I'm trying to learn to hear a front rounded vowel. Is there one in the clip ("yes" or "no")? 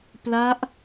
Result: no